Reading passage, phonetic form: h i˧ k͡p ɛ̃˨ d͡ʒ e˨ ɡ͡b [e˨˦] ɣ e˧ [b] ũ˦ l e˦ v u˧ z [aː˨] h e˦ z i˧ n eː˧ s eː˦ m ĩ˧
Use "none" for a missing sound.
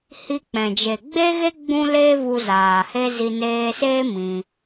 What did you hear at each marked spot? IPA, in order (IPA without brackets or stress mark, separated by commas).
e˧, ɡ͡b, aː˨